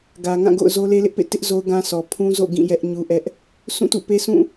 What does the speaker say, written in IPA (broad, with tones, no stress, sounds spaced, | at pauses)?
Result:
ɡ ä˨ ŋ ã˦˨ ɡ o̰˦˨ ʊ̯ z o˦ l e˦ l ɪ˦ ʔ p ḛ˦˨ t ɪ˦ ʔ z o˦ ʊ̯ ɡ ã˦ s ɔ˨ pʰ ũ˦ z o̰˦˨ ɡ ĩ˦˨ j ɛ˦ ʔ ɲ u˦ ʔ ɛ˦ ʔ | sʰ ũ˦˨ t ṵ˦˨ p e˦ s ũ˦˨